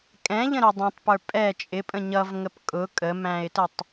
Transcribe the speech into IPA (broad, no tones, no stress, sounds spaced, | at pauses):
kʼ ɛ̃ ʎ ə̃ ɾ ʊ dˤ ɛ̃ tˤ p ə˞ pʼ ɛ t͡ʃʼ ɪ pʼ ə̃ ɲ ʌ v ŋ ə p kʼ ʊ kʼ ə m æ̃ ɪ̯ t ə tˤ